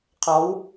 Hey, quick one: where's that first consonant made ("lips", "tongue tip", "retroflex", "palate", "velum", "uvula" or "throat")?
uvula